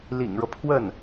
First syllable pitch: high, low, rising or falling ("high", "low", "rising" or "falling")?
low